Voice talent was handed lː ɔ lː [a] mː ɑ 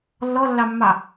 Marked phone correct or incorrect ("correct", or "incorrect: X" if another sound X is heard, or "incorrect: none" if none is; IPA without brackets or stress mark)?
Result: incorrect: ɑ